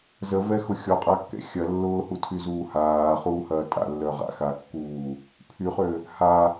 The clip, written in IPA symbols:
z ə v ɛ x ʊ xʲ ɔ qʼ a kː ɛ̰ xʲ ɐ lː ʊː h u tʰ y z uː h aː χ uː h ɐː tʼ a̰ lː œ ʁ a̰ x a kː uː | pʰ y χ ø | h a

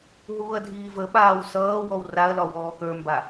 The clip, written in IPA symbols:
ɦ uː ɐ̯ dʱ iː v ə ɓ aː w s ʌː w ɔ w r a ɐ̯ l ɒ w ɔː k ə˞ m b a

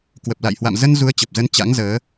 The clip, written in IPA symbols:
k w ə˨˩ p̚ l a̰˧˨ j h w a̰˧˨ m z ə˧ n z u˨˦ ə̯ t͡ɕ ə˨˩ p̚ z ə˨˦ n t͡ɕ a̰˧˥ ŋ z əː˨˦

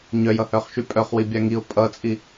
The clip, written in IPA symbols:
ɲ œ j ʌ h œ χ ʃ y pʼ œ χ w i bʲ a ŋ i ʊ̯ pʼ ʌ t͡sʼ i

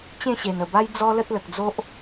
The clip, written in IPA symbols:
t͡ɕ ẽ˥˧ ɕ e˨˩ n ə˨˩ b a˦ j d͡z ɔ˦ l ə˦ t̚ l ə˨ k̚ d͡z o˦ ʔ

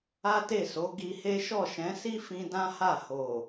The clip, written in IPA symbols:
a˦ t e˦˨ s o˨˦ ɡ i˧ h e˦ ʃ ɔ˦˨ ʃ ɛ̃˨˦ s i˦ f ĩ˧ d ã˦ h a˦˨ h o˨

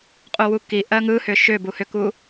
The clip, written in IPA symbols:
qʼ u w u k i ʔ ɜ ŋ ɯ h ʏ ʃ ʏ b u h ʏ k u

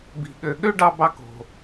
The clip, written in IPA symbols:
b i̤˩ ɠ ø˩ ɠ ø˥ ɖ ɑ˧ b ɑ˧ k o̤˩

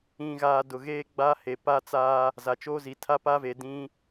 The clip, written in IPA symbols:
ĩ˨ ɣ aː˨ d ʊ˨ ɣ eː˦ ɡ͡b a˦ h e˨ p a˦ t͡s aː˦ | z a˨ t͡ʃ oː˦ z i˨ tʰ a˦ p aː˦ v eː˨ d ĩ˦

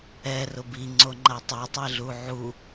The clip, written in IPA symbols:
ɛ r ʊ b i ŋ͡ǀ o ŋ͡ǃ a tˤ a tˤ e ɮ u ʕ u

